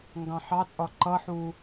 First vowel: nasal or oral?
nasal